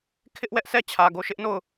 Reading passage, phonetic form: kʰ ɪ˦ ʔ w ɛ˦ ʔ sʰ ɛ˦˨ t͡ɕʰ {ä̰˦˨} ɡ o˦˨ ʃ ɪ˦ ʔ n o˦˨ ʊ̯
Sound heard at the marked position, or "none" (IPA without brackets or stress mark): ä˨